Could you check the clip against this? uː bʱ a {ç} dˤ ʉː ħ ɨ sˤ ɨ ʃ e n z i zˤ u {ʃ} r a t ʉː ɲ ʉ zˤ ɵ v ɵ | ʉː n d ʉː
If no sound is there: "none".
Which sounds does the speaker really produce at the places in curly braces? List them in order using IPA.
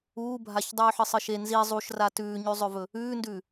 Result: ç, ʃ

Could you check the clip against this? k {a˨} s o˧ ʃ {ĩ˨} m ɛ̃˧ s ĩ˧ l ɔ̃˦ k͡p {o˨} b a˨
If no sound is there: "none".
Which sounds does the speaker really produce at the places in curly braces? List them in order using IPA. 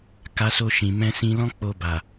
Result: a˧, ĩ˨, o˧

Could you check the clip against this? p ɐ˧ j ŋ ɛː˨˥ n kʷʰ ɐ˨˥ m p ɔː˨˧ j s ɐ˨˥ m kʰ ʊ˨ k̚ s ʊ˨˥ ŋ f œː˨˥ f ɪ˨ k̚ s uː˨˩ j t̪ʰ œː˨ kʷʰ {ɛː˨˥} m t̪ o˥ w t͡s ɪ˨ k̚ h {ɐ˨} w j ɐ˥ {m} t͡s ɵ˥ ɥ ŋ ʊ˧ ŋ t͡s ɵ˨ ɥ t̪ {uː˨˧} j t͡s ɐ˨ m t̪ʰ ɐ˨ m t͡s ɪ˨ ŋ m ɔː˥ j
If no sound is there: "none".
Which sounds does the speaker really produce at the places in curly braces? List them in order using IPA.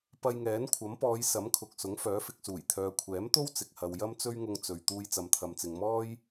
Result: ɛː˨˥, ɐ˨, m, uː˧

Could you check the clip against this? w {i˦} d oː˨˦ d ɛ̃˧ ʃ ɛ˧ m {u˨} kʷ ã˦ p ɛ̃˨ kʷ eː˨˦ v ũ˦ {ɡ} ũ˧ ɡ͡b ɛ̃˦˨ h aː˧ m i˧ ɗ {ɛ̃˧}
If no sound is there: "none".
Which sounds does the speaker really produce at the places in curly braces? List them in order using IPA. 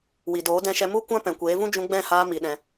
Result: i˨, u˦, d͡ʒ, ɛ̃˧

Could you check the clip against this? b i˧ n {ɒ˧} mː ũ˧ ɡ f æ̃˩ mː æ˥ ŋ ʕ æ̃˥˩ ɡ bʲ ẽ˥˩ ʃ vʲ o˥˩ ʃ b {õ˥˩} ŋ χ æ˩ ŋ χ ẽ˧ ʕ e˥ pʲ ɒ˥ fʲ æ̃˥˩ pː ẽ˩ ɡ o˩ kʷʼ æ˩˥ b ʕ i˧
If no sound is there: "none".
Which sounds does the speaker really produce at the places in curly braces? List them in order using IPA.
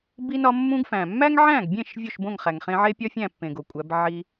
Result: ɒ˧, õ˥˩

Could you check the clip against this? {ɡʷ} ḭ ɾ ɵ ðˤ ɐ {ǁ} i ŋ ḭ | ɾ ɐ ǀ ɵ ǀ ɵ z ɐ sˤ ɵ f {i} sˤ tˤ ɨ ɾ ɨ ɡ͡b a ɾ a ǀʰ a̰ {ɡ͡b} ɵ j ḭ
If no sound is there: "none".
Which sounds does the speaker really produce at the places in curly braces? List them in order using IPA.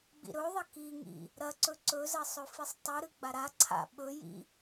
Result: ɡ͡b, k, i, ɓ

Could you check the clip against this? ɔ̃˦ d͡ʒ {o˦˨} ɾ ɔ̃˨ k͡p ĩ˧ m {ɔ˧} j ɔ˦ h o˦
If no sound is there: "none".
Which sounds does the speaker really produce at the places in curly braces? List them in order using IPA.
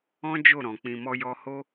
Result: o˦˨, ɔ˦

